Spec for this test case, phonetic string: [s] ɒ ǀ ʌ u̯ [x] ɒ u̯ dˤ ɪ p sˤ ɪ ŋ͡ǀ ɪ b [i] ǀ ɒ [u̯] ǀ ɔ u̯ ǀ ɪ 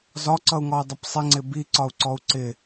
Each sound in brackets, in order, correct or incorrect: incorrect: z, incorrect: ŋ, correct, correct

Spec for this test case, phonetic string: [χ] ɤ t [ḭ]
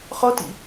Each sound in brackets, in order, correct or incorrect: correct, correct

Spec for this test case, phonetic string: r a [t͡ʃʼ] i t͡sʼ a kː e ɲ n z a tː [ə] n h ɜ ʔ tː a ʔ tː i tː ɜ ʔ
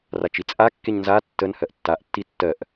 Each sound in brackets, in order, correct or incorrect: incorrect: t͡ʃ, correct

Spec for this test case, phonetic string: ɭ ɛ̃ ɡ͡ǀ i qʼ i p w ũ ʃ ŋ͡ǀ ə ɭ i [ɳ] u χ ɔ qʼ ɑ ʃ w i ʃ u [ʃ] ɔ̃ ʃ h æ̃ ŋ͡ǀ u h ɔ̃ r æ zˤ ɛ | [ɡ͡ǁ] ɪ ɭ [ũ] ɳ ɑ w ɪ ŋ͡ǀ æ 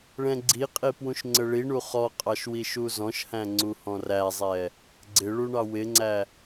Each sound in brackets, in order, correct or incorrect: correct, incorrect: z, incorrect: ɡ͡ǀ, incorrect: u

